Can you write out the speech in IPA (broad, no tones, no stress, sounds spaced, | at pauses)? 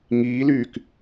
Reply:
ŋ iː l yː k